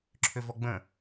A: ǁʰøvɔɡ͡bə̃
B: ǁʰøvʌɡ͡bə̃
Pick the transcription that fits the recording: A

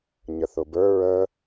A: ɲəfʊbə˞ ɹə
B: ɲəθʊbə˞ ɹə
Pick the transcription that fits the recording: B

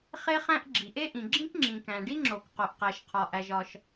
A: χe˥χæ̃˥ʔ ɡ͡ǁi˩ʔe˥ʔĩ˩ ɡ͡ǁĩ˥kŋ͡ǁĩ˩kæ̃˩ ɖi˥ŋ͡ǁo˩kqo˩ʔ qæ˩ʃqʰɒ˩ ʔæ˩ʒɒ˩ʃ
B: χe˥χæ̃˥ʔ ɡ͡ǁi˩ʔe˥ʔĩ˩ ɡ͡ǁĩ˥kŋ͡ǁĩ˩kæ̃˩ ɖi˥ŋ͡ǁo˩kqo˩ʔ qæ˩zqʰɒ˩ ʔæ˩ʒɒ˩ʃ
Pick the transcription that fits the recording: A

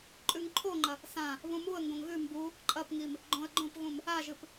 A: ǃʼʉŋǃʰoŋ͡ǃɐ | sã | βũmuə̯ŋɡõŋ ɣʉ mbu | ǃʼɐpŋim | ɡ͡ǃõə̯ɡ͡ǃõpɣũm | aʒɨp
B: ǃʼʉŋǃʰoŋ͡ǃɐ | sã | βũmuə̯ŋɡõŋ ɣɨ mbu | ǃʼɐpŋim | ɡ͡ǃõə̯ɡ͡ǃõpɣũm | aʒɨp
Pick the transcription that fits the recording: A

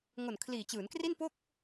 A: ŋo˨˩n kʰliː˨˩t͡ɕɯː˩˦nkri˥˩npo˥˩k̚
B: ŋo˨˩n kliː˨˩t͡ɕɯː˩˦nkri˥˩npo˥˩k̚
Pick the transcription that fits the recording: A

